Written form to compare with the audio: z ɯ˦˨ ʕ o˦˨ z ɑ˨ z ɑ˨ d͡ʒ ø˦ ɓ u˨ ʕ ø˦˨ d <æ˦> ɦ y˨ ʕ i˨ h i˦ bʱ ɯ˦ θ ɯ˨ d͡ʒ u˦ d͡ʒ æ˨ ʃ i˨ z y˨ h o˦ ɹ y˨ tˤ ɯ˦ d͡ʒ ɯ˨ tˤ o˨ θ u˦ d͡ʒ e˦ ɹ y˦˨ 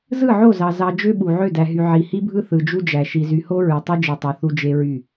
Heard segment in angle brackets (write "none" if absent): æ˨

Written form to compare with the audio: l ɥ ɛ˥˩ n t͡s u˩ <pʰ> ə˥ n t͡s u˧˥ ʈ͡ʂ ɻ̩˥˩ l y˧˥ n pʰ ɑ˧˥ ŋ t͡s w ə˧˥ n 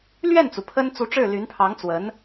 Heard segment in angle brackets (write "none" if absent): pʰ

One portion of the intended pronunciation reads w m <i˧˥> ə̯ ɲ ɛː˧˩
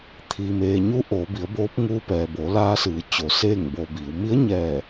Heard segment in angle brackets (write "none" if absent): i˧˥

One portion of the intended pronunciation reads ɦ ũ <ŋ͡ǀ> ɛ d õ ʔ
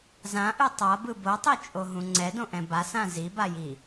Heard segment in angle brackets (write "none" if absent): ŋ͡ǀ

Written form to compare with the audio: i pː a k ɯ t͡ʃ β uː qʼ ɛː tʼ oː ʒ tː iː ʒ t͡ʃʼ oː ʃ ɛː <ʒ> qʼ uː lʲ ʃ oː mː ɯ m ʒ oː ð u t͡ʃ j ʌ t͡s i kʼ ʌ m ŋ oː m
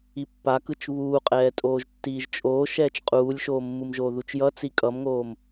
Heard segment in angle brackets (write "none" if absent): t͡ʃ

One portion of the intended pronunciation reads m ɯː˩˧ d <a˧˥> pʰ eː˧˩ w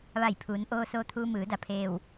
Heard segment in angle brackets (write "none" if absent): a˩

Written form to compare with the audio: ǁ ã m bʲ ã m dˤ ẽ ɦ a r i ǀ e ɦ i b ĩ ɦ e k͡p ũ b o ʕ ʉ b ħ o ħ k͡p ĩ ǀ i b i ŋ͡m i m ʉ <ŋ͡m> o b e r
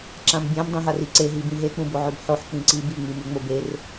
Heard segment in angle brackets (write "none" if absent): ŋ͡m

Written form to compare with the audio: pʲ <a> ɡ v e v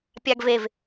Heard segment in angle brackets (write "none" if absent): a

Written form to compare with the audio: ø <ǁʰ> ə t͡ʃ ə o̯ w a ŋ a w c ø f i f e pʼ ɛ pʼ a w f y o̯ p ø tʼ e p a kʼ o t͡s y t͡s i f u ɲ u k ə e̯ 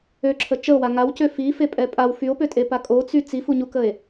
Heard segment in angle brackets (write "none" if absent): ǁʰ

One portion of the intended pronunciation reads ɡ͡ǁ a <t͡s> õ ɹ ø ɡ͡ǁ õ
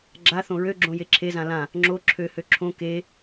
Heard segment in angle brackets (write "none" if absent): θ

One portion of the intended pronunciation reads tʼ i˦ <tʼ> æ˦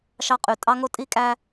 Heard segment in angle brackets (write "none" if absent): kʼ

